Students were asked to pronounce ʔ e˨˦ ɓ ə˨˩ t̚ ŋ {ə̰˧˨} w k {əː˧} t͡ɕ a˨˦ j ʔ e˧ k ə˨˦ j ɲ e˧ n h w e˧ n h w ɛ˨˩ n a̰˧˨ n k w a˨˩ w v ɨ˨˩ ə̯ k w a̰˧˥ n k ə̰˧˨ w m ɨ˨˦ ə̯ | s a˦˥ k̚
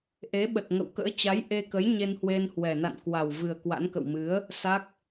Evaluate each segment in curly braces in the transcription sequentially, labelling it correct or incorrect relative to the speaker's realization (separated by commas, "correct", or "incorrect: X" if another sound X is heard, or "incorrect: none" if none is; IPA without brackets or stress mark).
correct, incorrect: ə̰ː˧˥